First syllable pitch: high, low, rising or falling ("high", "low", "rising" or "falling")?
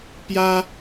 high